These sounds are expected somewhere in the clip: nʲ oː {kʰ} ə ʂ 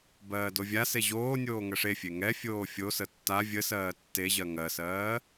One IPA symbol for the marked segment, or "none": ŋ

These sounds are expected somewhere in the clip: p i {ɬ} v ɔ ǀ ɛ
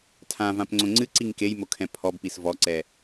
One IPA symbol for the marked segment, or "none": s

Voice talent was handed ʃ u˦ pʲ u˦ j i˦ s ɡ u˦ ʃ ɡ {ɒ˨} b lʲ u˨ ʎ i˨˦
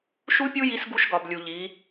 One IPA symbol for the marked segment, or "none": ɒ˨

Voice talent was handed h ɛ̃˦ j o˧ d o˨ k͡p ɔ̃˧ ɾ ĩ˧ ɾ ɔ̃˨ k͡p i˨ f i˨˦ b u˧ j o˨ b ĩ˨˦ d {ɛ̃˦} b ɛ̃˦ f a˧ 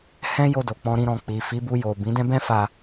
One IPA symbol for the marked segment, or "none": ɛ̃˦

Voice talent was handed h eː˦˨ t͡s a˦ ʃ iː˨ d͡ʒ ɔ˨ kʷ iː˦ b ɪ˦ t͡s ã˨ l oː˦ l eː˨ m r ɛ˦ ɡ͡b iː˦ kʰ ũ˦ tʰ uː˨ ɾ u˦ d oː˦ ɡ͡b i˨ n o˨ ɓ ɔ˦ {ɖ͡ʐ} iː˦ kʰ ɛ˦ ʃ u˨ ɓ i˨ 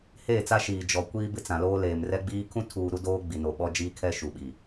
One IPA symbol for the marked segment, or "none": d͡ʒ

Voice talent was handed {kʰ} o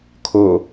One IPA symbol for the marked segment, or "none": kʰ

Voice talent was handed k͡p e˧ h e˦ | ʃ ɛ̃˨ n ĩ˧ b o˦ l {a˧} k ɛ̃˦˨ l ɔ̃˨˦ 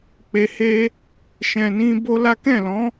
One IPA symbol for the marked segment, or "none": a˦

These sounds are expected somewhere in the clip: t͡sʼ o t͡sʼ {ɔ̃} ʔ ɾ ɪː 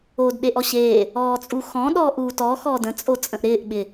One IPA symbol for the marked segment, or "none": ə̃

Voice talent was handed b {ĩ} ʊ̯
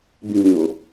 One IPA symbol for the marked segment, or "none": ĩ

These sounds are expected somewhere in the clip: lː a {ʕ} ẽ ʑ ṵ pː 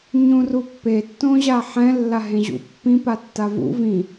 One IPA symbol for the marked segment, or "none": ɦ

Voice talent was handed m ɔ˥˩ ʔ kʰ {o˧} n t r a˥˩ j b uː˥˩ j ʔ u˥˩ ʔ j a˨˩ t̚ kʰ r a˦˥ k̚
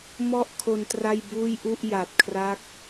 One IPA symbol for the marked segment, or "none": o˧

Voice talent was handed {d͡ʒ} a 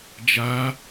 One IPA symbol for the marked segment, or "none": d͡ʒ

